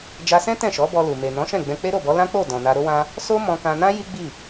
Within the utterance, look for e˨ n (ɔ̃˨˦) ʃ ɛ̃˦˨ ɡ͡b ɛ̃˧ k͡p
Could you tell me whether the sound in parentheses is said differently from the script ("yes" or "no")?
no